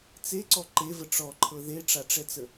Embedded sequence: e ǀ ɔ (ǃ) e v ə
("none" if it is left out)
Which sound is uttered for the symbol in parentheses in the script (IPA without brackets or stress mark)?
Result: ǃ